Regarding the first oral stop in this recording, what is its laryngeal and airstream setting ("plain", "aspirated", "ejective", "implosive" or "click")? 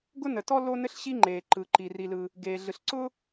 plain